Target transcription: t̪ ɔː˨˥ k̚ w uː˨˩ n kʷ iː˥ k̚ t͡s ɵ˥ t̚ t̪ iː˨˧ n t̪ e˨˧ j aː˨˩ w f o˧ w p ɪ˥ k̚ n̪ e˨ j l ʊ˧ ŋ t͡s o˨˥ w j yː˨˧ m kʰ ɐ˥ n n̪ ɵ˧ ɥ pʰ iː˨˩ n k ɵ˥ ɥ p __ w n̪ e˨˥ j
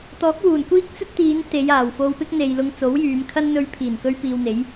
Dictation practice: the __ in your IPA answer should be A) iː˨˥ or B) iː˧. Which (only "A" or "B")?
B